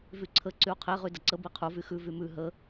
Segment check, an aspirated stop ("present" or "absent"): present